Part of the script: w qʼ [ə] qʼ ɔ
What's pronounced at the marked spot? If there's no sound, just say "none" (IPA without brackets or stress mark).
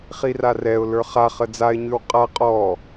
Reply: a